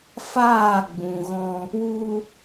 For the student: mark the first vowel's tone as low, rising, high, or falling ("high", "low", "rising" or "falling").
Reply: falling